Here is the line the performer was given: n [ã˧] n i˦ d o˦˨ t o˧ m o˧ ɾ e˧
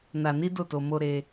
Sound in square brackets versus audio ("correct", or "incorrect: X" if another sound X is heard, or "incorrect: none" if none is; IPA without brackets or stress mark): incorrect: a˧